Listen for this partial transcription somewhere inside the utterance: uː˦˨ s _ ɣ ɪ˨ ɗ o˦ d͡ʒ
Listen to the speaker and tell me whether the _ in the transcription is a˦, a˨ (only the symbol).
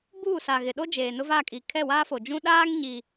a˨